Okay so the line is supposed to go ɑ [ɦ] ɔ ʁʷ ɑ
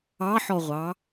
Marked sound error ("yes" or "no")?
yes